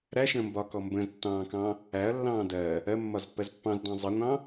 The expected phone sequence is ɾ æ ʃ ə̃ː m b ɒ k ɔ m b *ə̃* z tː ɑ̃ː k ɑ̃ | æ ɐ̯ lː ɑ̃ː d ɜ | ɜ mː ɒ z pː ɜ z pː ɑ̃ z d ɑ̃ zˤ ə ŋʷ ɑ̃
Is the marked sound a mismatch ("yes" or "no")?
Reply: no